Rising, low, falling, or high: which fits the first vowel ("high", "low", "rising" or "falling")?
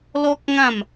high